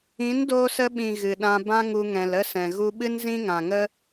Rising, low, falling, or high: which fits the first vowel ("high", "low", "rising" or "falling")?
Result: rising